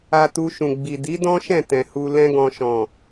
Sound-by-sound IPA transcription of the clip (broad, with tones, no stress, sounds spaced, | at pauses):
a˧ t u˧ ʃ ũ˨ ɡ͡b i˨ d i˨˦ d ɔ̃˦ ʃ ɛ̃˦˨ t ɛ̃˨ h u˧ l ɛ̃˦ ɡ ɔ̃˧ ʃ ɔ̃˨